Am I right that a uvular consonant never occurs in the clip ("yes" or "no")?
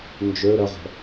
no